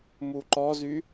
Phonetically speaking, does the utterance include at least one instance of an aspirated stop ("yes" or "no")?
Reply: no